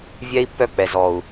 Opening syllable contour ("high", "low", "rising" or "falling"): high